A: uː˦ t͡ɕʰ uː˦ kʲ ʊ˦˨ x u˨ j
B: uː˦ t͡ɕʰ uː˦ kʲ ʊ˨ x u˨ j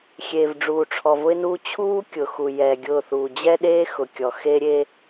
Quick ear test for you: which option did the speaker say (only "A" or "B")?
B